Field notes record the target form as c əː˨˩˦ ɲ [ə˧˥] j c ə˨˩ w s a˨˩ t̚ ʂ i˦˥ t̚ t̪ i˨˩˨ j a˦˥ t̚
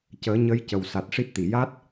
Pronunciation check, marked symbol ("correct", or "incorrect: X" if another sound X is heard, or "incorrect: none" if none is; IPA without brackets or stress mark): correct